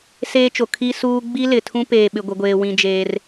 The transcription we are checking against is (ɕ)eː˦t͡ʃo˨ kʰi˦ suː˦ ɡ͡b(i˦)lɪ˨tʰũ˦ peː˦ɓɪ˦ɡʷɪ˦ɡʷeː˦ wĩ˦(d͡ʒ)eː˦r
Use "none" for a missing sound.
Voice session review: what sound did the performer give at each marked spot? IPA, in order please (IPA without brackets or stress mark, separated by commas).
s, i˦, d͡ʒ